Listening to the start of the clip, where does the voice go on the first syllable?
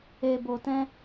low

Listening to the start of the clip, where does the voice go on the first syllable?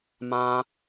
high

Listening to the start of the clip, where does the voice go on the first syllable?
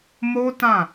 high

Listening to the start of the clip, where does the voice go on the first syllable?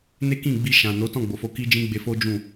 high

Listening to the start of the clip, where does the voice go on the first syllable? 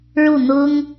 falling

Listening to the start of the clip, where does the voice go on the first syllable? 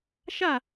falling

